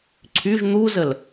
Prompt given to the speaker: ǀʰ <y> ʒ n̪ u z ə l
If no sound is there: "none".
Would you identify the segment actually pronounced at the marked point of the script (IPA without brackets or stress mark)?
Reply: y